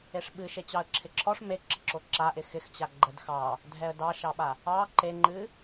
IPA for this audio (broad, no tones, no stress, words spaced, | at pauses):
eʂɓɨ ʃet͡ɕɑə̯ǁʰɪǁʰɔʂ me ǁəǁoǁa ʔɪxɪxt͡ɕa ɡ͡ǃədxɑ | dʱɛə̯dɑʃɑɓa | ɑ ǃeŋ͡ǃɨ